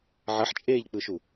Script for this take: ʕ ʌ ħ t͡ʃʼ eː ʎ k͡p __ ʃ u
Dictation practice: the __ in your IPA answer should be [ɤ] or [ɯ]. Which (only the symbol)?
ɯ